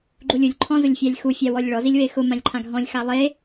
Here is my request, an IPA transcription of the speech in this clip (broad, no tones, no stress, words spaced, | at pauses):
ɡ͡ǃulʲulʲ ǃʰɔ̃zʊlʲfʲalʲxu fʲawɔlʲɭɔ zilʲwexʊ mãlʲǃʰãɡʱɔ̃lʲ xalˠe